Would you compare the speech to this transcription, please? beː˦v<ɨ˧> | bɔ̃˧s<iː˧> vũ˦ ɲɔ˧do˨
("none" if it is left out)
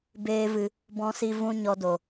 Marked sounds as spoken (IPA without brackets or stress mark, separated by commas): ɨ˧, i˧